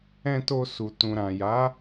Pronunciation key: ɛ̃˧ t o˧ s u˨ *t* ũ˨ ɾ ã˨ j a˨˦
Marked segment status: correct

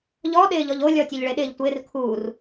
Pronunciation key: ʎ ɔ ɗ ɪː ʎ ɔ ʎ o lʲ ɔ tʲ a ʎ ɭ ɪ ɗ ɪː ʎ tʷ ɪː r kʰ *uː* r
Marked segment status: correct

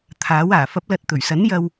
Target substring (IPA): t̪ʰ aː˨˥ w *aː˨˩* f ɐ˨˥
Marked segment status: correct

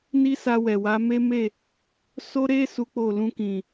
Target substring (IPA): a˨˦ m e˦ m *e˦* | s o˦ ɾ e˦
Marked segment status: incorrect: e˦˨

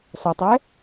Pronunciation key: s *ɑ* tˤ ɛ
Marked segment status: incorrect: ɔ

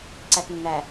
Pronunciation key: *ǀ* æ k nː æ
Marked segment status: correct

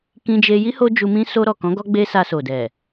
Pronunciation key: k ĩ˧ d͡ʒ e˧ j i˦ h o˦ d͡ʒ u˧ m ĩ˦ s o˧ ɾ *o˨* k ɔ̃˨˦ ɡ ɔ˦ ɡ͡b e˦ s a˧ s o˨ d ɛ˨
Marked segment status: incorrect: ɔ˨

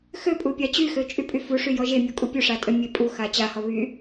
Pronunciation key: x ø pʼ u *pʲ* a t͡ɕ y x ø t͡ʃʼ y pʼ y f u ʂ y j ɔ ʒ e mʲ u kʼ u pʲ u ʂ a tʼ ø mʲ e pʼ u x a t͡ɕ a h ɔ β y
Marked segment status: correct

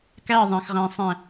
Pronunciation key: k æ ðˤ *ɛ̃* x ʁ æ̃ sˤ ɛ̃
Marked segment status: incorrect: æ̃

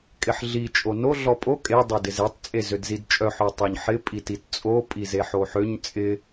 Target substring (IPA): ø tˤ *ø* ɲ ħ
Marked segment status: correct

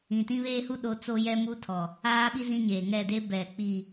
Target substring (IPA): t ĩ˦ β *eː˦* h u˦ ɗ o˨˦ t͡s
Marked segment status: correct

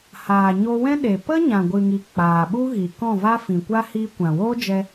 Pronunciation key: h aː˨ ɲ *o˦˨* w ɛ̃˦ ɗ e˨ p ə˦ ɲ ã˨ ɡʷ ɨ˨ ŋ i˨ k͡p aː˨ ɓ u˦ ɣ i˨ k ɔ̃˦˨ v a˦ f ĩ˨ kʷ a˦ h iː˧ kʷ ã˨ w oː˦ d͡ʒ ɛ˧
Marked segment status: incorrect: o˧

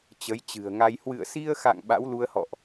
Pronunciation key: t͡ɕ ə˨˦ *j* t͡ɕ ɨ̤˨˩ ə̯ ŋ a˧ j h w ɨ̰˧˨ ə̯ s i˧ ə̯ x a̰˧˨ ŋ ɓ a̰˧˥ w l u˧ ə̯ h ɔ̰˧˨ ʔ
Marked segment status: correct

